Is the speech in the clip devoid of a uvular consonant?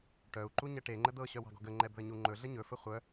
no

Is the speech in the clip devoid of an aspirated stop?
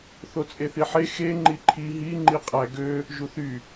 no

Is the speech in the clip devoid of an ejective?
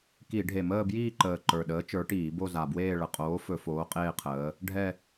no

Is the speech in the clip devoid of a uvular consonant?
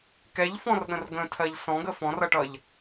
yes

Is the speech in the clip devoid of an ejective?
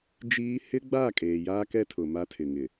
no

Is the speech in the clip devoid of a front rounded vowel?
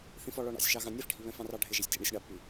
yes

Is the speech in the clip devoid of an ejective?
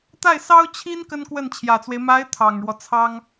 yes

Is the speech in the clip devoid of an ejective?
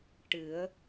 yes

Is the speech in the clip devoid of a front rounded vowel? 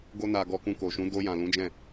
yes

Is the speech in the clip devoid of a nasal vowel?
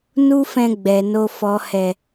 no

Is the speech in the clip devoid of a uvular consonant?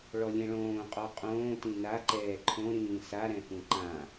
no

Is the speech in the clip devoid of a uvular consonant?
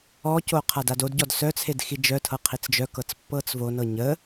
no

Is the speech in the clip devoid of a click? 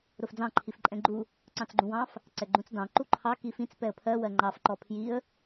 no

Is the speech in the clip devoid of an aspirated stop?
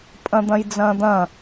yes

